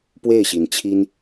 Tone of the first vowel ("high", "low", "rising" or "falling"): falling